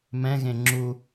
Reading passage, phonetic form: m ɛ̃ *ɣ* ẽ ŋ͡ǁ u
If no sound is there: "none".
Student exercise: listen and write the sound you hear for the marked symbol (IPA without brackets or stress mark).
ɣ